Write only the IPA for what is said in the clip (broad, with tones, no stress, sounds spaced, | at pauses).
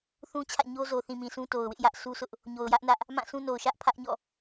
θ ũ˦ t͡ɕʰ ä̰˦˨ ɲ o˦ z o˨ θ ĩ˨ m ĩ˨ sʰ ũ˦ t o˨ ʊ̯ w ɪ˦ ʔ j ä˦ ʔ sʰ u˦ sʰ ʊ˦ ʔ | ɲ o˨ ʊ̯ j ä˦ ʔ n ä˦ ʔ | m ã˦˨ s ũ˦ n o˨ ʊ̯ ʃ ä˦ ʔ pʰ ä˦ ʔ ɲ ɔ̰˦˨